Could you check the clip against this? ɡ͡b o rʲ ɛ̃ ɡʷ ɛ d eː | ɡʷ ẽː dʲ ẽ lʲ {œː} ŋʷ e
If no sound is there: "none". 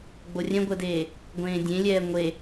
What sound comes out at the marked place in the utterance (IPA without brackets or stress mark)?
ɛː